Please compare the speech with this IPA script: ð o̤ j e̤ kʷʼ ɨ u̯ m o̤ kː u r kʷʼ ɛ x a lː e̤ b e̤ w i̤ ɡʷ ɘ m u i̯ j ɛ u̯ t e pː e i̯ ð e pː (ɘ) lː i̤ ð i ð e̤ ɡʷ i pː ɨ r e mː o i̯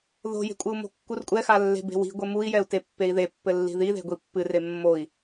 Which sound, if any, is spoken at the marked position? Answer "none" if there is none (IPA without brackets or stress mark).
ɘ